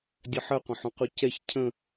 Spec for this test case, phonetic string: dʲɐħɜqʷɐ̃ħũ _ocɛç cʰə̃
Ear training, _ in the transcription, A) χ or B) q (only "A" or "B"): B